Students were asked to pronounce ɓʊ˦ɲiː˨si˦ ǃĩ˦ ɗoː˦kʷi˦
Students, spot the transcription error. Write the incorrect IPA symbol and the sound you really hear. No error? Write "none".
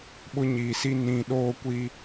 ǃ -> n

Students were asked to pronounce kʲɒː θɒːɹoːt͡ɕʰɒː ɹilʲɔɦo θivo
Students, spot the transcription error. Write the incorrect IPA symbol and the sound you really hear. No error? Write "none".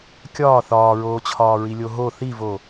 ɔ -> o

